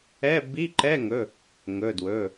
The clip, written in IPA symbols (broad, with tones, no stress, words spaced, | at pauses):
ɛ˧˥˧ bi˧˥˧ǃɛ˧˥˧ŋɵ˩˧˩ | ŋɵ˩˧˩dwɵ˩˧˩